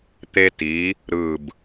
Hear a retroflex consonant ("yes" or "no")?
no